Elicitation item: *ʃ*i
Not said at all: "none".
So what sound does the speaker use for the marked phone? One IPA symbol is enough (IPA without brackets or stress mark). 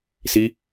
s